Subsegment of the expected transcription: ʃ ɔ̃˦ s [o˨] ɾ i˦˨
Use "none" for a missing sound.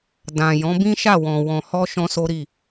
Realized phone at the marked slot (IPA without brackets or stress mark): o˦